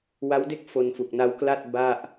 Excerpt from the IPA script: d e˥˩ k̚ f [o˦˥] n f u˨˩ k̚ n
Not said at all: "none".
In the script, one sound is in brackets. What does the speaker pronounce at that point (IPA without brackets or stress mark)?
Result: o˧